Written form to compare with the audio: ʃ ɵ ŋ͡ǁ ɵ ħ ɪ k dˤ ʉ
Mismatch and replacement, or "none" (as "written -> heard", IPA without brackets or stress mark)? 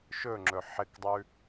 none